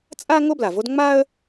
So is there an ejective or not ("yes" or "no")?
yes